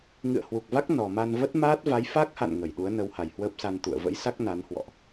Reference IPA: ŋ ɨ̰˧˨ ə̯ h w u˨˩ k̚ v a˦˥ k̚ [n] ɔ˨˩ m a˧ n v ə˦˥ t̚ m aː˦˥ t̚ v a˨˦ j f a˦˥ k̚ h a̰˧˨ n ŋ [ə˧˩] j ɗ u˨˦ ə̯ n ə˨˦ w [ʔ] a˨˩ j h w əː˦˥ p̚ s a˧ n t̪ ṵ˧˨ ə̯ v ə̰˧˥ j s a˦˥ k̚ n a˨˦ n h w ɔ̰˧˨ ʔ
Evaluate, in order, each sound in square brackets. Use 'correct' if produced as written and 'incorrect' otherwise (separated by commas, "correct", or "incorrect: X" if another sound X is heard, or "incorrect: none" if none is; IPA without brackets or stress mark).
correct, correct, incorrect: h